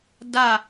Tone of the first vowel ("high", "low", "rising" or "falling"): falling